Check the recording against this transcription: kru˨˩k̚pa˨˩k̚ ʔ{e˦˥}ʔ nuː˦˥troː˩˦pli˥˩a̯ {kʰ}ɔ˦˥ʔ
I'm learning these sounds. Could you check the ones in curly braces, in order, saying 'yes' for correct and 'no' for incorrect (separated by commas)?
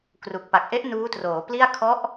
yes, yes